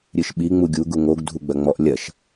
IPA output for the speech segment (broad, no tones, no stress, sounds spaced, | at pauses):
ɾʲ ɨ ʃ ɓ i ŋ͡m u ɡʲ u ɡ u ŋ o ɡ dʱ u ɡ͡b ɐ ŋ͡m ɔ ʔ lʲ ɐ ʃ